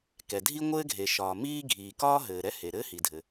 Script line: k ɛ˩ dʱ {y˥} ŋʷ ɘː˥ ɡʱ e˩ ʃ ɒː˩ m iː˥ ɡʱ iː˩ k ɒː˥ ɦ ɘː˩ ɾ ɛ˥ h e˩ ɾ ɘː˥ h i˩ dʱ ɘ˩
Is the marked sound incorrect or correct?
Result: incorrect